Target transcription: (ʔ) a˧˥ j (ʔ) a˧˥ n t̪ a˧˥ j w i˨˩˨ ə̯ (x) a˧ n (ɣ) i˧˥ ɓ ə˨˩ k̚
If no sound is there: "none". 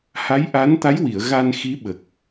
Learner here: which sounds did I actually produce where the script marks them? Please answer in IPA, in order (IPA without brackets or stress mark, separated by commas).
h, ʔ, ɣ, x